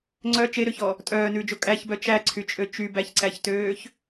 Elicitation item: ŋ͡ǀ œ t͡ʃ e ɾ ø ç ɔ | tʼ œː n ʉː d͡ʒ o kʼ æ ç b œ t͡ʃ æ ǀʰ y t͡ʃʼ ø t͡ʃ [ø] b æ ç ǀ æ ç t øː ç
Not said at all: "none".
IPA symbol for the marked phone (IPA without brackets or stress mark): y